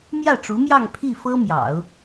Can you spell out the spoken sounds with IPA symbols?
m j ä˥˩ ʈ͡ʂ u˧˥ m j ɑ˥˧ ŋ pʰ i˥˩ f ɤ˥ m j ɑ̰˨˩˦ ʊ̯

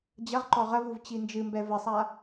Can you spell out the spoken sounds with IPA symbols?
d͡ʑ ɐ ʁ ǃ ɔ ʁ ɐ v u v t͡ɕ i n d͡ʒ ɨ m b ɛ v ɘ sˤ a

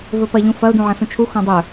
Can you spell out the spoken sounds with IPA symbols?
v ɵ p ɐ ʎ ũ f ɐ ʊ̯ d ũ ʕ ɐ̃ s ũ t͡ʃʰ u x õ dˤ ɵ

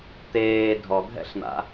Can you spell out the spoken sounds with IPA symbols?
t̪ eː dʱ ɔ ɡʱ ɛ̰ ɬ n̪ a̰

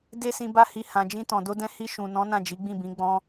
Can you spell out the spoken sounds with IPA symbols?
d e˦ s ĩ˧ b a˦ h i˧ h ã˨ d͡ʒ ĩ˧ t ɔ̃˨ d o˧ d ɛ̃˧ h i˧ ʃ ũ˨ n ɔ̃˨˦ n ã˦˨ d͡ʒ i˨˦ ɡ͡b ĩ˦˨ b ĩ˨˦ ɡ͡b ɔ̃˧

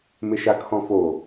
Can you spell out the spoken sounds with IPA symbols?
m ɪ ʃ a kʰ ɔ̃ f o

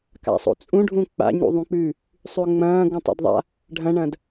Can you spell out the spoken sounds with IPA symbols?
k a̰ sˤ o̰ t͡sʼ ũ ɖʱ ũ k͡p a̰ ɲ ṵ ðˤ ũ k͡p ʉː | sˤ ʉ ʊ̯ ŋ͡m ɐ̃ː ɡ ũ tˤ a̰ d ðˤ a̰ | ɖʱ ɐ̃ ɳ ɐ̃ d

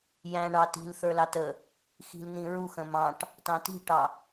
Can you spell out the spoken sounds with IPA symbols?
j æ̃ ɳ ɑ t i̤ l θ ə˞ l ɑ t ə | x i̤ l n̪ ĩ ɹ u x ə̃ m ɑ̃ ʈ | t ɑ̃ t i̤ ʈ ɑ

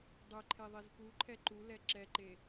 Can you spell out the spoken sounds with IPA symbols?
dˤ ɘ ǃʰ e ðˤ i z p u ǃʰ ɛ ǃ u l ɛ ǁ ɛ ǃ e

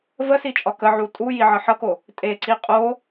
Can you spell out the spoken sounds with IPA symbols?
v ə s i t͡ʃʼ ɒ k ə ʕ u tʼ u j i ʕ ʌ ħ ʌ k o | tʼ e ǀ i qʼ o

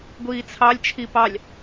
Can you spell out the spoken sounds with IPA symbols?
ɡʷ iː t͡sʰ ɑ lʲ t͡ʃʰ i p ɑ lʲ

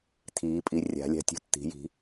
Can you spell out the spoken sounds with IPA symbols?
tʰ iː˩˥ pʼ i˩˥ rʲ a̤˩˥ lʲ a̤˦ tʲ ṳ˦ tː i̤˩˥ j i̤˩˥

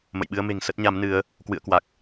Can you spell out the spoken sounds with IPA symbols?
m ə̰˧˨ j ɓ ɨ˧ ə̯ m e̤˨˩ ŋ s ə˦˥ t̚ ɲ a˨˦ m n ɨ˨˦ ə̯ | k w ɨ̰˧˨ ə̯ k w a˨˩ k̚

